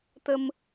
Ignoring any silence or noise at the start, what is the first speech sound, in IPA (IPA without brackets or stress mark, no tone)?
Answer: t̪